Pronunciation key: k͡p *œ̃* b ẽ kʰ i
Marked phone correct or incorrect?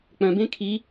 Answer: correct